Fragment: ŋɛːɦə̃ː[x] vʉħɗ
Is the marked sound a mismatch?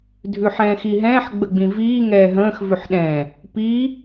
no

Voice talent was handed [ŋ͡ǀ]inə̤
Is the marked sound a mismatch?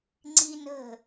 no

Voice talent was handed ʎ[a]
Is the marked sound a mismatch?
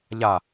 no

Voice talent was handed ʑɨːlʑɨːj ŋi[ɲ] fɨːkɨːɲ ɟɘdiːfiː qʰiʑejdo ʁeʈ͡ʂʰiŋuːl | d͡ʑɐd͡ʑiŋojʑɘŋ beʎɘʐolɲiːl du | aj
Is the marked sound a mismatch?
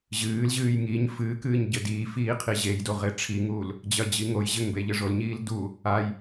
no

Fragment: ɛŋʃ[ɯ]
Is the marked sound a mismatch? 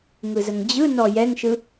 no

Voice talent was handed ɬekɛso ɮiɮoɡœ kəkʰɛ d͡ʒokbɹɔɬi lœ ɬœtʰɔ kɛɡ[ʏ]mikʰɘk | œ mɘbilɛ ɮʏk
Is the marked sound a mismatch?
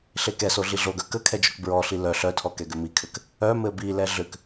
no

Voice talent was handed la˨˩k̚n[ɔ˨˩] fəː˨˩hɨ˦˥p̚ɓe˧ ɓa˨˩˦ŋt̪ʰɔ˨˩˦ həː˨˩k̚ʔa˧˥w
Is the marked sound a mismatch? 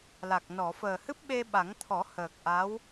yes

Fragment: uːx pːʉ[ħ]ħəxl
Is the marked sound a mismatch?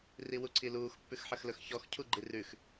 yes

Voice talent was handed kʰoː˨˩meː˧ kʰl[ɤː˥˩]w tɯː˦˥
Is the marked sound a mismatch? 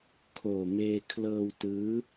yes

